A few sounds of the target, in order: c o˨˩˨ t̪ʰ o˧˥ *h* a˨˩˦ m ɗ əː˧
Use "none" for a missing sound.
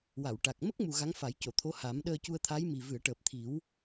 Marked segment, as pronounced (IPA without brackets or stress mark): h